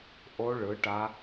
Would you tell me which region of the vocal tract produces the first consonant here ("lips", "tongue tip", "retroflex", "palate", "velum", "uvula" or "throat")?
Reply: throat